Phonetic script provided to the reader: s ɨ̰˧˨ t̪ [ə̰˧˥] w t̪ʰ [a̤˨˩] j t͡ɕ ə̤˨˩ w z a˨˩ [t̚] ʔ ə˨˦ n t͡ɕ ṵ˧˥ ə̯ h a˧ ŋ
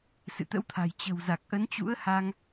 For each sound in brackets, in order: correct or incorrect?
correct, correct, incorrect: k̚

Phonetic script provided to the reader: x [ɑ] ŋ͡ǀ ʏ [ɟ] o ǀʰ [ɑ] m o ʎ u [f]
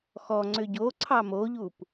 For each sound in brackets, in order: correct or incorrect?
incorrect: ɔ, correct, correct, incorrect: p

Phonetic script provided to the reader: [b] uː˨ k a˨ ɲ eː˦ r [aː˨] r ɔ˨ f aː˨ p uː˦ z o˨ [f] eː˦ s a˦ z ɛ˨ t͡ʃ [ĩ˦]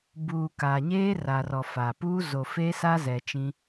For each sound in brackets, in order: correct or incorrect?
correct, incorrect: a˨, correct, correct

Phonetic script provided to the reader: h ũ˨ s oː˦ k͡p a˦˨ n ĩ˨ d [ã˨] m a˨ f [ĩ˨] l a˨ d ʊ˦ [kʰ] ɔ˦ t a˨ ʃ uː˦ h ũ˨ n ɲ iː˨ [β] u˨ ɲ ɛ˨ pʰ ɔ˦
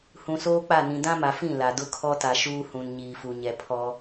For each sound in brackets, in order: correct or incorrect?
incorrect: ã˦, incorrect: ĩ˦˨, correct, incorrect: f

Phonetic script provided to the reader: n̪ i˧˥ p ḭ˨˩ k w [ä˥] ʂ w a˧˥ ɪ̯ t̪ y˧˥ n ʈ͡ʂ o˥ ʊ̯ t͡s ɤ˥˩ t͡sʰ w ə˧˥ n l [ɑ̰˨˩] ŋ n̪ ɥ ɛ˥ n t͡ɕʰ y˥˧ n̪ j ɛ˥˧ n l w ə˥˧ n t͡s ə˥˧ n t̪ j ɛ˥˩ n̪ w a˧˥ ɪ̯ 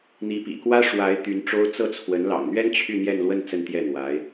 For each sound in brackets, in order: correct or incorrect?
correct, correct

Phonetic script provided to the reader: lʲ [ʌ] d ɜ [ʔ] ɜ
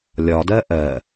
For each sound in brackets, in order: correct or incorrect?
incorrect: ɒ, correct

